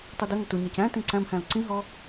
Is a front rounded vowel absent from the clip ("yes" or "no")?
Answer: yes